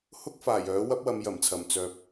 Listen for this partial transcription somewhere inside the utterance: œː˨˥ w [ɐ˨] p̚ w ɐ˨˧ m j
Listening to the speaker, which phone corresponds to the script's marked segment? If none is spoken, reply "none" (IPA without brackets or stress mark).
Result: ɐ˥